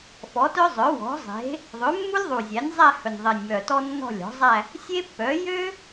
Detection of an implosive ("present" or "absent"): absent